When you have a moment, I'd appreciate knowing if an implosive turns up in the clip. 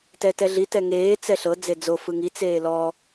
no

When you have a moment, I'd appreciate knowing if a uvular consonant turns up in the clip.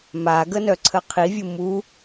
yes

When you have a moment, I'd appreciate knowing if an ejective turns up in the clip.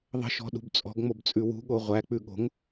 yes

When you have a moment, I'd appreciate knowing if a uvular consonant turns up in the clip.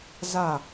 no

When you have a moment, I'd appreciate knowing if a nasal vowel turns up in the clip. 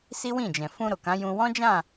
yes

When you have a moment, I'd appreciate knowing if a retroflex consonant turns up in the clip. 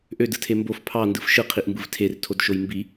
no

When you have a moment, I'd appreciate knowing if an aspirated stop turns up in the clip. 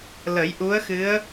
no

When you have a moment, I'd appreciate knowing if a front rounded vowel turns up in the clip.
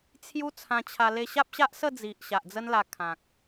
no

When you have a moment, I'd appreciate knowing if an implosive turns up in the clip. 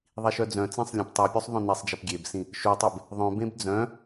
no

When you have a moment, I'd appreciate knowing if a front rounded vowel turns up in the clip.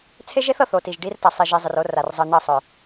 yes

